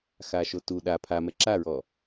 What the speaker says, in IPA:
x a ʃ o t u ɗ a pʰ a m ɛ ǁ a ɹ ɔ

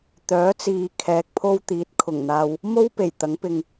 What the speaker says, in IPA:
t̪ œː˨˥ t͡s iː˨ kʰ ɛː˨˥ k̚ pʰ o˥ w t̪ iː˨˥ t̚ kʰ ʊ˨˩ ŋ n̪ aː˧ w | m o˥ w p e˨˩ j t̪ ɐ˨˥ ŋ p ɪ˧ ŋ

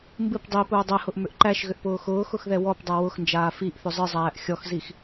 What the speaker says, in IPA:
m b ɨ p dˤ i p ʊː dˤ ɛ h ʊ ʔ m ʏ ʔ ǃ æ ʃ ɣ ʏ ʔ p ʊː x ʊː x ʊ x ð ɛ w ɔ p dˤ æ w ʊ x n d͡ʒ aː f i ʔ θ ʏ zˤ ɨ zˤ æː ʔ xʲ ɔ x z i x

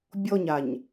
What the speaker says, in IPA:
bʲ ɔ ɲ a ɲ

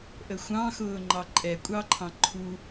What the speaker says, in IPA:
ʔ ə xʷ ɑ̃ x ʊː ŋ͡ǃ ɑ ǃʼ ɛ kʷʼ ɑ ǃʰ ɑ̃ ǃʰ u

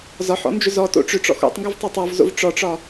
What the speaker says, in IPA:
z ɒ ħ ɔ̰ n d͡ʒ ʏ z ɔ t o̰ ʈ͡ʂ ʏ ʈ͡ʂ ɔ̰ x o̰ tˤ ŋ ɡ ʏ v tˤ ɑ tˤ ɔ v z o̰ v ʈ͡ʂ ɔ ʈ͡ʂ ɒ

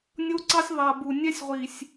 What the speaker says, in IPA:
nʲ o˦ ǀ ɑ˦ sʲ ðˤ a˨ b u˨ nʲ ɛ˦ sʲ ʁʷ i˨ sʲ

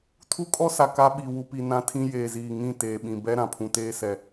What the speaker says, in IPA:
tʰ u˦ kʼ ɔ˦ s a˨ k a˦ ɓ i˨ w u˨ p i˨ n ã˦ tʰ ĩ˦ j eː˨ z iː˨ ŋ ĩ˦˨ t eː˨ ɓ ĩ˨ b ɛ˦ ɾ ã˨ pʰ ũ˨ t eː˦ s ɛ˨

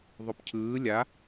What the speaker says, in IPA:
ðˤ o p cʰ ɯː lʲ a

